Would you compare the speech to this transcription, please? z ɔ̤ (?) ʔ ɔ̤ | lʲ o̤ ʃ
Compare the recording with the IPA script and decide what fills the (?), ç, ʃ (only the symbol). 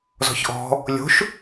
ç